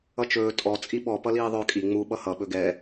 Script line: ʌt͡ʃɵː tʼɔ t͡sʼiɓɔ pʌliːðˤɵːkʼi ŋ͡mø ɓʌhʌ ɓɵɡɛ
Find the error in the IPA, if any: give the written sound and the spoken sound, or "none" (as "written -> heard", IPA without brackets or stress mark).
ø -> u